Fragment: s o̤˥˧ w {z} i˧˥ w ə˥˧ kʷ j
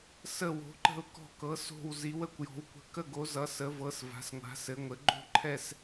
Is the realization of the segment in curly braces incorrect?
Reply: no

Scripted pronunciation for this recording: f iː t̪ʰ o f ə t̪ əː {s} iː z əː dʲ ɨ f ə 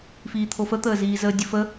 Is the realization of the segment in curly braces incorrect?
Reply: yes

